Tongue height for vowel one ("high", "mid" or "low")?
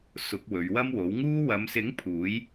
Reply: high